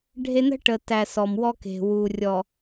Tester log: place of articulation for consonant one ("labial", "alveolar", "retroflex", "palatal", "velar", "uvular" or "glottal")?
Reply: retroflex